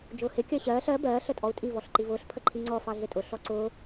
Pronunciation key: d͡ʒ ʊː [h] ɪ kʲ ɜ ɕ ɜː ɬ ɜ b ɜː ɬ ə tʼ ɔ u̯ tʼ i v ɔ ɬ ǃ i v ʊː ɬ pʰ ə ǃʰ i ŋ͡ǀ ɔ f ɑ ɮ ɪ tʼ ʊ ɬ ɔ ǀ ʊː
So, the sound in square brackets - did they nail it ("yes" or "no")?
yes